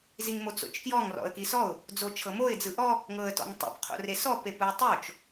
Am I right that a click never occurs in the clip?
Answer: yes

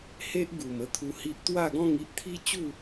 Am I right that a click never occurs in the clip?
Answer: yes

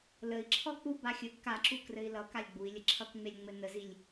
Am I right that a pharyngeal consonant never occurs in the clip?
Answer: yes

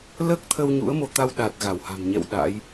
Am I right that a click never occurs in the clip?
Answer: yes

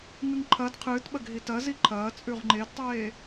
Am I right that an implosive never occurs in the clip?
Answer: no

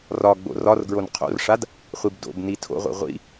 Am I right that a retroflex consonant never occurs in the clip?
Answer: no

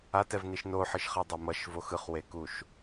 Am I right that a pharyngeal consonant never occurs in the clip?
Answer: no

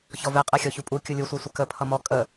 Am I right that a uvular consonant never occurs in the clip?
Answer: no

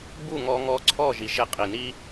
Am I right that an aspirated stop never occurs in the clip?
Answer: no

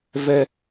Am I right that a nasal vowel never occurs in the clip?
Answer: yes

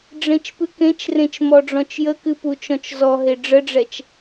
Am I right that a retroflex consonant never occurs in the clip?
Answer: no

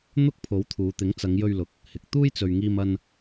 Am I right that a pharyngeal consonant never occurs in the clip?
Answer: yes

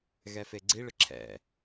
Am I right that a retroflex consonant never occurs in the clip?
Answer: no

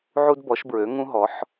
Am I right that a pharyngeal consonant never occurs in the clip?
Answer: no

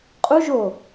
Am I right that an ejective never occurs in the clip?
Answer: no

